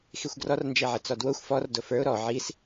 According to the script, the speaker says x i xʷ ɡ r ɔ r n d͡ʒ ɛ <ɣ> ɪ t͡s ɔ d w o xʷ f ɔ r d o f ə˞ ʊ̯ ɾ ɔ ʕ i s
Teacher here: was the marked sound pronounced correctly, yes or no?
no